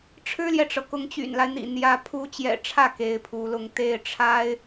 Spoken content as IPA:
ʈ͡ʂʰ ɻ̩˥ l j ɛ˨ ʈ͡ʂ ɤ˩ k ʊ˧˥ ŋ t͡ɕ y̰˨˩ n l a˦ ɪ̯ n̪ ḭ˨˩ n̪ j ä˥ pʰ u˧˥ t͡ɕ j ɛ̰˨˩ ʈ͡ʂʰ ä˥˩ k e˧˥ ɪ̯ pʰ u˧˥ l ʊ˥˧ ŋ t̪ e˥˩ ɪ̯ ʈ͡ʂʰ a˥ ɪ̯

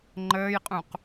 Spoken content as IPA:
ŋ͡ǃ əː j qʼ ũ q

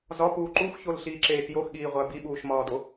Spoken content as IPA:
z ɒ p uː ǃ u x ç o l ɬ iː ǁ eː x j o x ɠ iː ʁʷ æ b i ɓ uː ʃ m ɒː d o

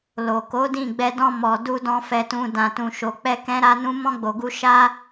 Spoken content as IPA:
l o˨ k o˨˦ d ĩ˦˨ ɡ͡b ɛ˧ d ɔ̃˧ m ɔ˨ d u˧ d ɔ̃˧ f ɛ˨ t ũ˨ d ã˨ t ũ˨ ʃ o˨ k͡p ɛ˧ k ɛ̃˧ ɾ a˧ n ũ˧ m ɔ̃˧ ɡ͡b o˨ ɡ u˧ ʃ a˦

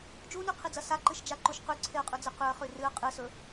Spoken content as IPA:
d͡ʒ u n ʉ qʰ i d͡z ɐ s a ǃ ɨ ʃ d͡ʒ a ǃ u ʃ q ʉ ǀʰ e ə̯ qʼ ʉ d͡z ɨ q ʉ ə̯ χ ʉ r ɨ ə̯ qʼ ɨ s ɵ

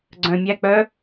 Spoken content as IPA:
ɡ͡ǀ œ̃ mʲ æ k͡p œ

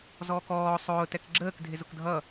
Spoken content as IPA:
z ɔː k ɔː sˤ ʊː t ɛ k ɡ͡ǁ əː k dʱ ɪ z ʊ k dʱ ʌ

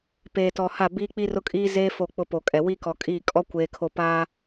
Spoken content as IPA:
p eː˨ t ɔ˨ h a˦˨ b iː˦ k͡p i˦ r ʊ˦ kʼ iː˦ z eː˦ f o˦˨ k͡p ʊ˦ p o˨ kʼ ɛ˨ w i˦ k ɔ˨ kʼ iː˦˨ kʼ ɔ˦ kʷ eː˨ kʰ o˨ p aː˦

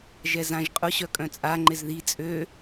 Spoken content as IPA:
ʒ ɛ z ã ʒ qʼ ʊ ɕ œ kʼ œ̃ t͡sʼ a ŋ͡ǃ ɪ z ð i t͡sʼ ø

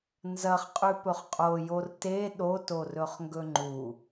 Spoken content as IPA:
n z ɐ χ qʼ ʉ p ɵ χ qʼ o j o r t e ɗ o t o r ɵ χ ŋ ɡ ɵ ŋ͡ǃ u

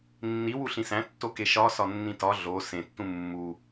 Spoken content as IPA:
nː i w u ɬ ĩ s æ̃ tː o k e ʃ ɒ s ɒ nː ĩ t ɒ ɮ o s ẽ tː ũ mː u

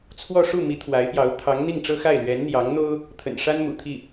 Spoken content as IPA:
t͡sʰ w ɔ˥˧ ʂ u˥˩ m i˧˥ t̪ʰ w a˧˥ ɪ̯ p j ɑ˧˥ ʊ̯ t̪ʰ ɑ˧˥ ŋ n̪ i˥˩ ŋ ʈ͡ʂ ɤ˥ x a˥˩ ɪ̯ l ɥ ɛ˧˥ n n̪ j ɑ˧˥ ŋ n̪ o˥ ʊ̯ | t̪ʰ ə̰˨˩ n ʂ a˥ n m ṵ˨˩ t̪ʰ i˥˩

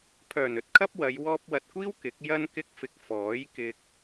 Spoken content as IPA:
pʰ œː˨˩ n ɵ˧ t̚ kʰ ɐ˥ p̚ w ɐ˨˧ j w ɔː˧ p̚ w ɐ˨ t̚ kʷ iː˥ w k ɪ˨˥ k̚ j ɐ˥ n k ɪ˥ k̚ f ɪ˧ k̚ f ɔː˨˥ j k ɪ˧ k̚

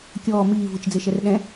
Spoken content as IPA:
kʲ ɔː m iː v ɯ t͡ʃ d͡z e ʃ ɛ r ɗ ɛ̃

